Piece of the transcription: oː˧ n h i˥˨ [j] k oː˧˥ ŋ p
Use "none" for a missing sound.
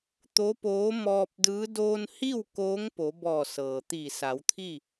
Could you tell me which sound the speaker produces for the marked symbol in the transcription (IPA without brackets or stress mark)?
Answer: w